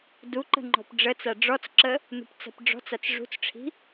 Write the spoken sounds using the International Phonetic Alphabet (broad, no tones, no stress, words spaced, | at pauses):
duǃə̤ ŋ͡ǃɔ̤pɖ͡ʐət͡sa ɖ͡ʐɔt͡sǁə | nṳpt͡sa̤pɖ͡ʐɔ̤t͡sat͡s ʐṳt͡sʈ͡ʂʰi̤